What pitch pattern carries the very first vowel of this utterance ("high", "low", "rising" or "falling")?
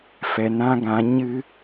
low